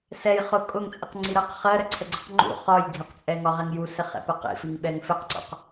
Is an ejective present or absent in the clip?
present